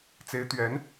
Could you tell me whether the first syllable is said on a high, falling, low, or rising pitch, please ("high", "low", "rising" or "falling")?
rising